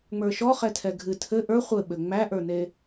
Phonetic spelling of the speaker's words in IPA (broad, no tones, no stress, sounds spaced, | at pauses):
ŋ͡m ə˞ ʃ ɔ χ ɛ tʰ ɛ ɡʱ ɨ tʰ ɘ ʔ ə˞ χʷ ɘ ɓ ɘ ŋ͡m æ ʔ ə˞ n e